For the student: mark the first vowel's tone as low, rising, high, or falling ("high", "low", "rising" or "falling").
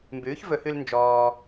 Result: rising